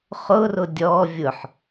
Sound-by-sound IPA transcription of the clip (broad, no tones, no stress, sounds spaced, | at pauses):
χ ʊ r ʊ dʲ ɔ vʲ ʊ ħ